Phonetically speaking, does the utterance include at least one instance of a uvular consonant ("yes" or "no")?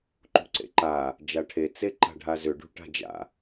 no